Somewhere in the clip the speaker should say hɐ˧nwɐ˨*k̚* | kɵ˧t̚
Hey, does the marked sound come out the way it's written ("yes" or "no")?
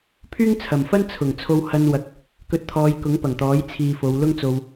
yes